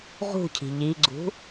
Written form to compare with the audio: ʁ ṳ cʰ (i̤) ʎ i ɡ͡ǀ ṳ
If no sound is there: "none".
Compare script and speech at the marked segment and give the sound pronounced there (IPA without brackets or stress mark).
i̤